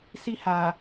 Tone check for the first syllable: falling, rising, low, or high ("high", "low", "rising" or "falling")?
high